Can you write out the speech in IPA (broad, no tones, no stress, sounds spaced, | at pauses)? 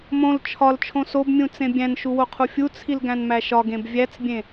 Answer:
m õ l t͡ʃʰ ɒ l t͡ʃʰ õ s o b mʲ ũ t͡s ẽ bʲ æ̃ n ʃ u w o qʰ u fʲ u t͡sʰ i l ɡ æ̃ n m æ ʃ ɒ ɡ ẽ b vʲ æ t͡s bʲ ẽ